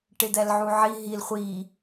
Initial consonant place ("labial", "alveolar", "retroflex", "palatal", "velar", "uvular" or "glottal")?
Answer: retroflex